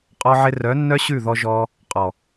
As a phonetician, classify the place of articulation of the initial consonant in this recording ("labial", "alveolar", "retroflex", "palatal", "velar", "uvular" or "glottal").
uvular